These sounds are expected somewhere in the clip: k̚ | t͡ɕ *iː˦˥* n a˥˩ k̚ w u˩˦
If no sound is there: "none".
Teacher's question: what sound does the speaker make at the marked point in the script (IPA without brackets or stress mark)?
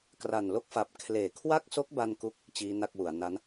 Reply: iː˦˥